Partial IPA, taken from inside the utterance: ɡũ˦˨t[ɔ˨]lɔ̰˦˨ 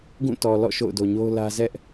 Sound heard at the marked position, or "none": ɔ˨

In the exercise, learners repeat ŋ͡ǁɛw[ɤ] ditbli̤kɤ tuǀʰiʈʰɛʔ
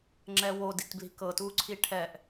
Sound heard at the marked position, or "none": o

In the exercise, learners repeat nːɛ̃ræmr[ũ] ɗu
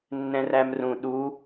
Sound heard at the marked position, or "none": ũ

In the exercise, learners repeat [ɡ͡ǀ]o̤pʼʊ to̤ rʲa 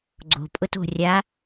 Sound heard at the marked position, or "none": ɡ͡ǀ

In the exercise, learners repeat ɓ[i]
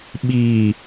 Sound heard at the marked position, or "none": iː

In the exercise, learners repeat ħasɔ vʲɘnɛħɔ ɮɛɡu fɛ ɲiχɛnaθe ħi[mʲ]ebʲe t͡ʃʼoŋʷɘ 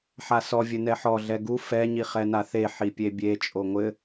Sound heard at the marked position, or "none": pʲ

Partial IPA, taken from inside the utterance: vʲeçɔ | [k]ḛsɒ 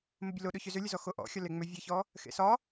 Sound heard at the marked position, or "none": x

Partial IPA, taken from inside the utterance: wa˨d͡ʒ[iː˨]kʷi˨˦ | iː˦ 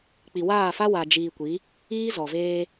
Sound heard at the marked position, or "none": iː˨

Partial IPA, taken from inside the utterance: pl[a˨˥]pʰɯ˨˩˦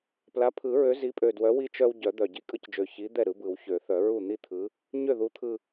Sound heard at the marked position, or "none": a˨˥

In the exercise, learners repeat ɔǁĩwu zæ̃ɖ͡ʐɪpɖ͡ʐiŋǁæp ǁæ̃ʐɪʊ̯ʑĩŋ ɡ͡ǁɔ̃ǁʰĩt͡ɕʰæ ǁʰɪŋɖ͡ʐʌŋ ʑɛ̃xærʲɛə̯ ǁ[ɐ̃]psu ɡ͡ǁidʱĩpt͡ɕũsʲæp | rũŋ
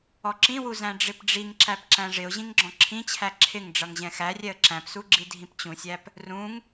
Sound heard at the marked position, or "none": æ̃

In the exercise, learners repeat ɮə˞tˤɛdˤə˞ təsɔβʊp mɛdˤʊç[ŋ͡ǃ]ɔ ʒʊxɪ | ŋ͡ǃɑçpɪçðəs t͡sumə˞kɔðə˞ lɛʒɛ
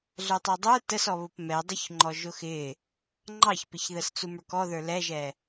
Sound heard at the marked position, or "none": ŋ͡ǃ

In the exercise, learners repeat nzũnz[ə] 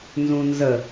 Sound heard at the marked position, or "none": ə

